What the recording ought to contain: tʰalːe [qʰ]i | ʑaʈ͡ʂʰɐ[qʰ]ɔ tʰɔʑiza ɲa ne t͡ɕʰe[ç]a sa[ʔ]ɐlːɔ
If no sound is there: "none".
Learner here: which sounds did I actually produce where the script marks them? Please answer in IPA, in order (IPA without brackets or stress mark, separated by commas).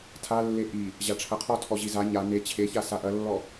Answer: ʔ, qʰ, ç, ʔ